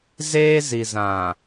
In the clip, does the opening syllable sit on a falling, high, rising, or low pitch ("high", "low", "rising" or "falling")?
high